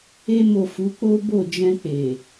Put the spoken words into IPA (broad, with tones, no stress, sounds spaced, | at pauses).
e˧ m o˨ f u˨˦ k͡p o˦ b o˦˨ d͡ʒ ɛ̃˧ k͡p e˨